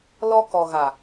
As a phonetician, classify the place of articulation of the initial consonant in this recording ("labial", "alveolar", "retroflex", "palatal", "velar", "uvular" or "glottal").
alveolar